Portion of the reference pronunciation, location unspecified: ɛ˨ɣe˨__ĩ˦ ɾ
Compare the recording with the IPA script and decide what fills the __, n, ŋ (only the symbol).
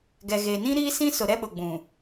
n